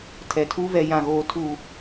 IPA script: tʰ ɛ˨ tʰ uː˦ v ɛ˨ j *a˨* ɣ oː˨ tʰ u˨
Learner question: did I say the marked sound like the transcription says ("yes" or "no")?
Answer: no